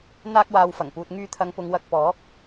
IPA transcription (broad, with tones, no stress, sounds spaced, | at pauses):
n̪ aː˧ k̚ w aː˨ w f ɐ˨˩ ŋ p uː˨ t̚ ŋ yː˧ t̪ʰ ɐ˨˧ ŋ p ʊ˨˧ ŋ w ɐ˧ k̚ p ɔː˨˥ k̚